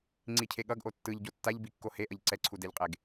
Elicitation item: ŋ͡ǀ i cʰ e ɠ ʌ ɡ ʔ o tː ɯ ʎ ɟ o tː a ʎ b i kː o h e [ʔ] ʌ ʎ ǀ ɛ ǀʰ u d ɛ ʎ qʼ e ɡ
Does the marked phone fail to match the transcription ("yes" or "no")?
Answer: no